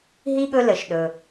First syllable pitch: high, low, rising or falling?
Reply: high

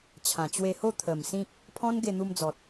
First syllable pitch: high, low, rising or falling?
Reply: low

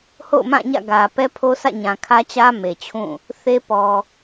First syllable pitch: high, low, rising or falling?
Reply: falling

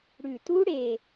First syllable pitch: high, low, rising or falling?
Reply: low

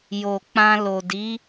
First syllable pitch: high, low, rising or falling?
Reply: low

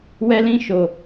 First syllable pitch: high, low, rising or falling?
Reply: high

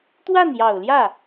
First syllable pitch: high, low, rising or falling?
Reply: falling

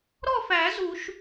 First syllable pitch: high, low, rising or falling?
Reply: falling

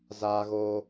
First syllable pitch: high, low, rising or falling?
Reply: high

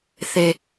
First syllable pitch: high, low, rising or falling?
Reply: high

